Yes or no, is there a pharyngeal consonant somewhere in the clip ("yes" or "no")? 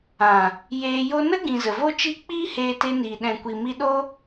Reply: no